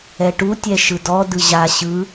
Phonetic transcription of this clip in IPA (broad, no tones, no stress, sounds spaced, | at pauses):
ɛ ʈ u tʲ ɛ ʃ ɯ d ɔ d ɯ ʑ a ɕ ɯ